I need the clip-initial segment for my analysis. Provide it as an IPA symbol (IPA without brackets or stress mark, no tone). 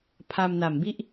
pʰ